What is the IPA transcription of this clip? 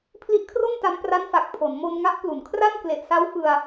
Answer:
pʰ l i˦˥ ʔ kʰ r o˥˩ n t a˦˥ m p r a˦˥ n f a˨˩ k̚ pʰ o˩˦ n m o˧ n ŋ a˦˥ ʔ p l u˩˦ n kʰ r a˥˩ n k l e˨˩ ʔ s a˦˥ w f ɯ˧ a̯

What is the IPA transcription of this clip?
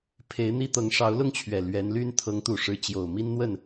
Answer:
pʰ e˧˥ ɪ̯ n̪ i˥ t̪ ɤ˧˥ ŋ ʂ ɑ˧˥ ʊ̯ l ʊ˥ ŋ t͡ɕʰ ɥ ɛ˨˩ l ɥ ɛ˧˥ n l y˥ n t̪ʰ ɤ˧˥ ŋ t̪ u˨˩ ʂ ɻ̩˧˥ t͡ɕ j o˨˩ ʊ̯ m i˥ n n̪ w ə˥˩ n

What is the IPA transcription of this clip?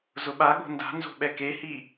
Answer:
z ʊ ɓ a ɠ o̤ n d a̤ n z o̤ ɓ ɛ k e h i

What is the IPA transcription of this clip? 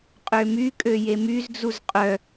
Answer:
qʼ ø m y kʼ ø j e m y z d͡z u z qʼ œ

